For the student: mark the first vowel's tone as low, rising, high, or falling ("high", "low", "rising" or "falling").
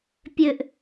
high